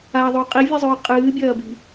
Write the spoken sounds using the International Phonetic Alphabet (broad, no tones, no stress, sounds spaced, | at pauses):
a ðˤ o qʼ i vʲ ɨ zˤ ɵː qʼ ɨː bʲ ɐː b i̤